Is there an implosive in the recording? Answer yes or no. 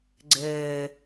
no